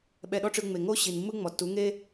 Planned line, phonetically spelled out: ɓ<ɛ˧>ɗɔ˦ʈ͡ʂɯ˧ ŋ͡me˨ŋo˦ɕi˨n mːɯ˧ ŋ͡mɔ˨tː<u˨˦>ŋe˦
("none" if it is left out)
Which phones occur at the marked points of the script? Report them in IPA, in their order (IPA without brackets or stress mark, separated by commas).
ɛ˧, u˨˦